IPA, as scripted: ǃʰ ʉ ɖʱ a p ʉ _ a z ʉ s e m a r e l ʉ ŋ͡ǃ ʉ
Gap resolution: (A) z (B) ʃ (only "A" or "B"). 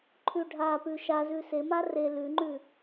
B